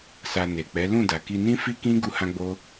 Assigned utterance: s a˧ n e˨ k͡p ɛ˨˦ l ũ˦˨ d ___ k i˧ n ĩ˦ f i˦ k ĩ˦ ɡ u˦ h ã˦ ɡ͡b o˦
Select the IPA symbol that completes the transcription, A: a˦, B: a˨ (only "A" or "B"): B